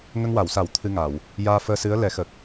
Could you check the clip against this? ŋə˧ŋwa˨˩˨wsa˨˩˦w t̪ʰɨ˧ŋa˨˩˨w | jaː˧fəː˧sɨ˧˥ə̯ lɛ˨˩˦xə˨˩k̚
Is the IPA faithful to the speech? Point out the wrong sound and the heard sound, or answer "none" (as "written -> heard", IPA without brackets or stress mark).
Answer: none